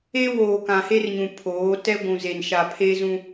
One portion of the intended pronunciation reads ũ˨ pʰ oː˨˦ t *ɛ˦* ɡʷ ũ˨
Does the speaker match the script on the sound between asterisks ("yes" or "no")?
yes